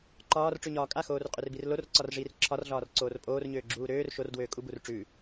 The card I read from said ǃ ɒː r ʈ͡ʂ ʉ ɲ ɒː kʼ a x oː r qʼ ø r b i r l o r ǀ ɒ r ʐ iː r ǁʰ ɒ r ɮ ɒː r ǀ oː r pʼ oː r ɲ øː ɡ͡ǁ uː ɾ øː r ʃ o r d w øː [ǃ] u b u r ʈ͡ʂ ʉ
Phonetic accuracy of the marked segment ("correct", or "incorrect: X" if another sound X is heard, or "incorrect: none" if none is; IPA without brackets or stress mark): incorrect: kʼ